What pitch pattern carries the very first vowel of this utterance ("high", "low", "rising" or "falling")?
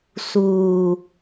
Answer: low